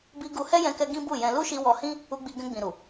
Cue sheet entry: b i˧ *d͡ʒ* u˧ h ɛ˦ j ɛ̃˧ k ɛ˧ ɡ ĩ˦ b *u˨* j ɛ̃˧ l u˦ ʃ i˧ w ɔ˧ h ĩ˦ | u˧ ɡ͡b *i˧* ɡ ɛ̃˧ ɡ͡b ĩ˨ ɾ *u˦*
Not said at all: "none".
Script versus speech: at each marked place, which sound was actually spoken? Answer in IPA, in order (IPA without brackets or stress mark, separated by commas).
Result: ɡ, u˦˨, i˧, u˨